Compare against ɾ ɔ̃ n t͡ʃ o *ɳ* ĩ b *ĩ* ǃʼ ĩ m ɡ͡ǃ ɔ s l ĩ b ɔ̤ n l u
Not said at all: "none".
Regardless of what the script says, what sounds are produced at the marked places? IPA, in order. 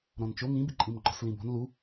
ŋ, i

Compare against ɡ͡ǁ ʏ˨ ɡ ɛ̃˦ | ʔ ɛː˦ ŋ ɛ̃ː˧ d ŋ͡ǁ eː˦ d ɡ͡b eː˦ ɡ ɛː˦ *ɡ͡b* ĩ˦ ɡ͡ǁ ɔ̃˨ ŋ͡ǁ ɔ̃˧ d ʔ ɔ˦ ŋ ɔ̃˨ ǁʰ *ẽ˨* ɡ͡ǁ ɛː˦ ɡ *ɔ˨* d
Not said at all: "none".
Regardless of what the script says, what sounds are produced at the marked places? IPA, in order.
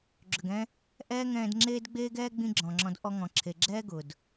ɡ͡b, e˨, ʊ˨

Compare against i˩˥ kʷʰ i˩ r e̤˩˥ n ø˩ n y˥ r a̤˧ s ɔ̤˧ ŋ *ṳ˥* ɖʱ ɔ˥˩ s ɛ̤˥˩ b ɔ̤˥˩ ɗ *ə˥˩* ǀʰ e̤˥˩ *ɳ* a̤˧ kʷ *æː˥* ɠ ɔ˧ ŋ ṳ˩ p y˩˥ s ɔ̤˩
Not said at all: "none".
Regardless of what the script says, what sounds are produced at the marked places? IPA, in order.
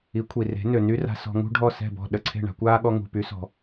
ṳ˥, ə˥˩, ɳ, aː˥

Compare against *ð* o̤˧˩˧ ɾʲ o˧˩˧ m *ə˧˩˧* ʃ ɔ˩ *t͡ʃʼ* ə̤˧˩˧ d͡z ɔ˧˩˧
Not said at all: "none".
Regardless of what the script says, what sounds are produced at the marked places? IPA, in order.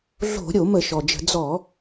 ɮ, ə˧˩˧, d͡ʒ

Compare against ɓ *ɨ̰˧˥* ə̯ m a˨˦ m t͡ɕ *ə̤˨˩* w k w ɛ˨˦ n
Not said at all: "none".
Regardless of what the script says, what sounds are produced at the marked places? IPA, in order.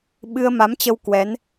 ɨ˧, ə˧

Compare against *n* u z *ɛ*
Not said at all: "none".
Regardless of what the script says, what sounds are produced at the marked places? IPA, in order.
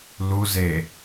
l, e

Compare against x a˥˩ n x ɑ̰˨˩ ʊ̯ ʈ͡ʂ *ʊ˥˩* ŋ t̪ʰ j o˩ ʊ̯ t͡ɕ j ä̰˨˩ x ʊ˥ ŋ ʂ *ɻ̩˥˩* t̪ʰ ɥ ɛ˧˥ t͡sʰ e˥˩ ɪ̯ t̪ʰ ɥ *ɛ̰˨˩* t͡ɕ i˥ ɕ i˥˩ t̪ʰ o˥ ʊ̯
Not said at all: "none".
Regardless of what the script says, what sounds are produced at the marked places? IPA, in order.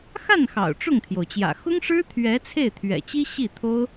ʊ˥˩, ɻ̩˥, ɛ̰˨˩

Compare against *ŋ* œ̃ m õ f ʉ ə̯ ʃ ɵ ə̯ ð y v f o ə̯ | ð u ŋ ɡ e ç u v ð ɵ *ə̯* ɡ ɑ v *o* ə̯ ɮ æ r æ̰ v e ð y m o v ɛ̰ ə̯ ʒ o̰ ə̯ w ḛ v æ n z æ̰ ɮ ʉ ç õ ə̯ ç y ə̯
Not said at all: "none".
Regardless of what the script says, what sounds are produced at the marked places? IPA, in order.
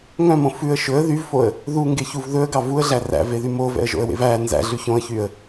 ŋ, ə̯, u

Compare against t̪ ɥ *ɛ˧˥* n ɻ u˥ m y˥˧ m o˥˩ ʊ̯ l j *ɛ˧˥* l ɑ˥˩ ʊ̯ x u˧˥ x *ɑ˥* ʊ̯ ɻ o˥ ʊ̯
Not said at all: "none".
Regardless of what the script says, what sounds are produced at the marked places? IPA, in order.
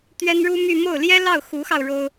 ɛ˥, ɛ˥, ɑ˧

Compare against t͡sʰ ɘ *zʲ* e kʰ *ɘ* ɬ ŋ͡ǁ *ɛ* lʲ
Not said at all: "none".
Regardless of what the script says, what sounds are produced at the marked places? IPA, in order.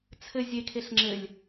zʲ, e, ɘ

